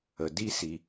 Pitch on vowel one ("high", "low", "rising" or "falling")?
low